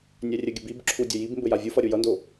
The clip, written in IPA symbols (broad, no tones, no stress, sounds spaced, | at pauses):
nʲ æ rʲ ɘ ɡʲ ɘ b i b ǁʰ u dʲ ə j i b m b ɘ j a vʲ u f ʌ ɾʲ u j ʌ n d o